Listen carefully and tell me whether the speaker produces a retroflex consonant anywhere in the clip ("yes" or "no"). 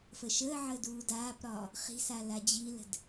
no